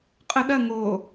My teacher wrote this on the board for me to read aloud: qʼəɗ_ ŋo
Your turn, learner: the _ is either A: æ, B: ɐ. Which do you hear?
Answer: B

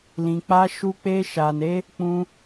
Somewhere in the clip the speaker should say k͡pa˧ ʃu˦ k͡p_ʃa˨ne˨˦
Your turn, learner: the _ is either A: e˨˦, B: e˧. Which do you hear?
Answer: B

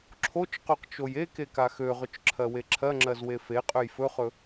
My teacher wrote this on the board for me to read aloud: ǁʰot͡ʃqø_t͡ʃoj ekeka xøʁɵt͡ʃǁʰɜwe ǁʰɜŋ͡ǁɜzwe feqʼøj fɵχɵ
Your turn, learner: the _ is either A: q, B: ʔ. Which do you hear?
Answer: A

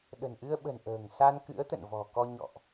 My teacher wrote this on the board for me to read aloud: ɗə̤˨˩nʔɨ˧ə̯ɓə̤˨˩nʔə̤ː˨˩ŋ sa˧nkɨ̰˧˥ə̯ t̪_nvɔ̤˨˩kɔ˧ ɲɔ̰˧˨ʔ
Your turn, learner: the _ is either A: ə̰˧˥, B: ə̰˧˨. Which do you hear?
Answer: B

